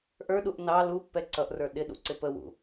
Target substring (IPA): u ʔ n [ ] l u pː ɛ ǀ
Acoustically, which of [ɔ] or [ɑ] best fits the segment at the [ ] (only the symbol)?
ɑ